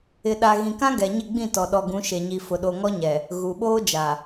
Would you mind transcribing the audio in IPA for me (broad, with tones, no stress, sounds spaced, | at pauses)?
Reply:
ɪ˨ ɗ a˨ ɣ ĩ˨ k ã˦ ɡ ɛ˨ ɲ ɪ˦˨ ɡ͡b ĩ˦˨ t ɔ˨ ɗ ɔ˨ ɡ ũ˨˦ ʃ e˨ ɲ i˨ f ʊ˨ ɗ o˨ ŋ ɔ˦ ɲ ɛ˨ | ɣ u˨ ɓ oː˦ d͡ʒ a˨